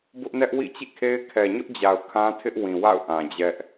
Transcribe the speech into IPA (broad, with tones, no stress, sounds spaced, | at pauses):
b ʊ˦ ʔ n ɛ˦ ʔ w ḭ˦˨ t͡ɕ ḭ˦˨ kʰ e˦ ɪ̯ kʰ ɛ˨ ɲ ʊ˦ ʔ d͡ʑ a˨ ʊ̯ kʰ ã˦ tʰ ɪ˦ ʔ w ĩ˨ w a̰˦˨ ʊ̯ ʔ ã˨ d͡ʑ ɛ˦ ʔ